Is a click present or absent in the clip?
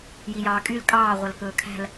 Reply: absent